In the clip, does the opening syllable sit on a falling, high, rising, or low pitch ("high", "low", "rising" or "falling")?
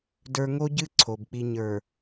high